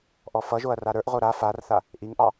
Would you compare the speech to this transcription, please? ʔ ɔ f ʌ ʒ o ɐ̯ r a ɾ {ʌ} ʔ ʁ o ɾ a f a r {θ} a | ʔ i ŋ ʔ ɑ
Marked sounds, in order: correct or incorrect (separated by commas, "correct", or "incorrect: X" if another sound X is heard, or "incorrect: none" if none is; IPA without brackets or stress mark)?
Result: incorrect: ə˞, correct